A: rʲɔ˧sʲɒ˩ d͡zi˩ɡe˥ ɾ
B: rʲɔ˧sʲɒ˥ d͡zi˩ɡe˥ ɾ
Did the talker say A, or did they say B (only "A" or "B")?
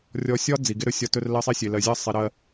B